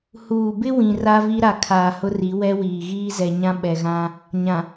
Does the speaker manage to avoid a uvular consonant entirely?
yes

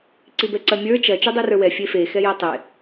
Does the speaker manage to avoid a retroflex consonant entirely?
yes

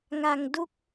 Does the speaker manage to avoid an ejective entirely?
yes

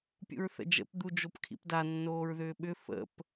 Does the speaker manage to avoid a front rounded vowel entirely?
no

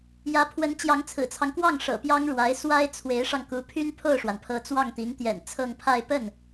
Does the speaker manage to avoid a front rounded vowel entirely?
no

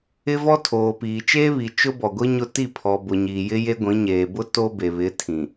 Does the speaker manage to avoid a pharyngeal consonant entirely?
yes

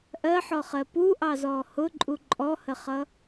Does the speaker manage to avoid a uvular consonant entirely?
no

